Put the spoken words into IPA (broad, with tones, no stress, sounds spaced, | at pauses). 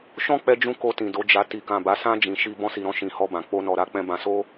ʃ ɔ̃˦ k͡p ɛ˧ d͡ʒ ũ˧ k o˧ t ĩ˨ d o˨˦ d͡ʒ a˧ t i˨ k ã˨ b a˨˦ s ã˦ d͡ʒ ĩ˧ ʃ i˧ b ɔ̃˧ s i˨ ɾ ɔ̃˧ ʃ ĩ˨ h ɔ˧ b ã˨ k͡p o˧ n ɔ˨ ɾ a˨˦ k͡p ɛ̃˧ b ã˧ s o˦